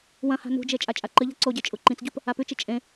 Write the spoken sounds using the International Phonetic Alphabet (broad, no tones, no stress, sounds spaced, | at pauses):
w ɐ̃ h a̤ n ṳ d͡ʒ e t͡ʃʼ a t͡ʃʼ a ǃ ɨ ʎ a̤ ǀ o ɟ e t͡ʃʼ u ǃ ĩ t͡s ɟ u p | a p ʉ t͡ʃ i t͡ʃʼ ẽ